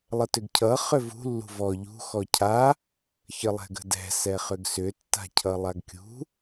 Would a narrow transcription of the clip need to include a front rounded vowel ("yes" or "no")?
yes